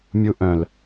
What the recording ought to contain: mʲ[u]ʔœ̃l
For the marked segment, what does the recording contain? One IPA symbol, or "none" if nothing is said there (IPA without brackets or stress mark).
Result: u